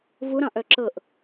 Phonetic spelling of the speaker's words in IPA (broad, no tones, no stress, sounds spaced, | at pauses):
v u ɾ ɑ̃ ʔ œ ǁ ɤ ʔ